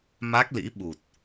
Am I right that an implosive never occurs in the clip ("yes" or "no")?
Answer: no